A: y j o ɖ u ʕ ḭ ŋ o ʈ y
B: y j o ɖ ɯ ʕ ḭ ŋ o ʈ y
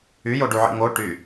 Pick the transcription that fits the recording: A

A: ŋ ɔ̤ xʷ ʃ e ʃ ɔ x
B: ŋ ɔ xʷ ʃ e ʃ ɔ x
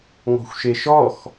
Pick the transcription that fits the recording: A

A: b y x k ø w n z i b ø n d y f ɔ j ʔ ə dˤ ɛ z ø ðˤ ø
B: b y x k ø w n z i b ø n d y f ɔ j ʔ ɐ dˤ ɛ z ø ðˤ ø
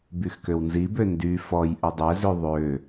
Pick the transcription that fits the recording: A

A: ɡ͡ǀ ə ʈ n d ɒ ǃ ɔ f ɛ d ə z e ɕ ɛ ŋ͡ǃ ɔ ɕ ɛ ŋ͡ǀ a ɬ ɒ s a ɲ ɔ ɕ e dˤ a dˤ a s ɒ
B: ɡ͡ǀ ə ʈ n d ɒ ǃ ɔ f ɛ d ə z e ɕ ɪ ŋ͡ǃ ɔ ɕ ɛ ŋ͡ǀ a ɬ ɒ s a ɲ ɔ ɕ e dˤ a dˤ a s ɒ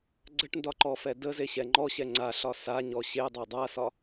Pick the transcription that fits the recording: A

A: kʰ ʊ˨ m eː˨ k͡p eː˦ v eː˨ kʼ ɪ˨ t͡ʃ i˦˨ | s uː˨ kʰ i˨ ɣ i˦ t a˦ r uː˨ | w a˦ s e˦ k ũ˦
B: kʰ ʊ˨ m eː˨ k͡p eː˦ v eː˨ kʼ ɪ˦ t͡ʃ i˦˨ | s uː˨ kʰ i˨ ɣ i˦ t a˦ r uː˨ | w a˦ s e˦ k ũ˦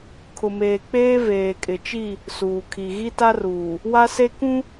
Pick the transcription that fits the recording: A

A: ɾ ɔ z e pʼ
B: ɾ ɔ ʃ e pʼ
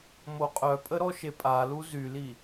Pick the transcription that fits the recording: B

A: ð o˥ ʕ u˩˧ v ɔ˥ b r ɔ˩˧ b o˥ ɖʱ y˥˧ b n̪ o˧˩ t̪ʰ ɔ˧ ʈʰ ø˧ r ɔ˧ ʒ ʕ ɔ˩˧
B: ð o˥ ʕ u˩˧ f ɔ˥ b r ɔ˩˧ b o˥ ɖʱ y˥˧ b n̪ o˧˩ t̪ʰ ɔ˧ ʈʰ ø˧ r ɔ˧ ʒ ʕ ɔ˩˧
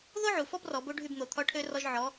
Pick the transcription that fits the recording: B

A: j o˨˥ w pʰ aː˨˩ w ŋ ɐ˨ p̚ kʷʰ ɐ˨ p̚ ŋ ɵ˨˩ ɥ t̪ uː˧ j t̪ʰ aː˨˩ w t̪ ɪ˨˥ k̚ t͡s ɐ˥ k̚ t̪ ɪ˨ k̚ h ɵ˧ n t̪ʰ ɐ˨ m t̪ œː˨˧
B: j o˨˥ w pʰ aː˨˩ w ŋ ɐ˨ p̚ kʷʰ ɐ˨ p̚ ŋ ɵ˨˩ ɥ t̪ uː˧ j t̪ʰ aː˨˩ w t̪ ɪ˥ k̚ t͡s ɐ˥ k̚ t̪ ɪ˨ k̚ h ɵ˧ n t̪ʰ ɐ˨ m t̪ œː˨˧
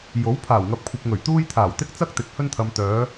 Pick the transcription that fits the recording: B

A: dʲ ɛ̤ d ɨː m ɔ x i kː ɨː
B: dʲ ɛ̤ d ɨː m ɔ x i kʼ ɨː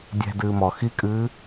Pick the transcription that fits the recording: B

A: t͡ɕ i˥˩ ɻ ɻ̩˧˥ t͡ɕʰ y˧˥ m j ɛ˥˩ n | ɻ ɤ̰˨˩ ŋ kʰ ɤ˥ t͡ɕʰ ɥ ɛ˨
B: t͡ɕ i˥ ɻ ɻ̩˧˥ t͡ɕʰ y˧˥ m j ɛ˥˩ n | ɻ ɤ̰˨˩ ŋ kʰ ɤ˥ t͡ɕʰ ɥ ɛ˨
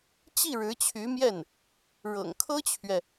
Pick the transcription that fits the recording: A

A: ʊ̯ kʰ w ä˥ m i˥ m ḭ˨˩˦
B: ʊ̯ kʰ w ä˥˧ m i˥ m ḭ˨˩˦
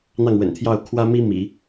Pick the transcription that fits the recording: A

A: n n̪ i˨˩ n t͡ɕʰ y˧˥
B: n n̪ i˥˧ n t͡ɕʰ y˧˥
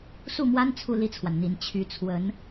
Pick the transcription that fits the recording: A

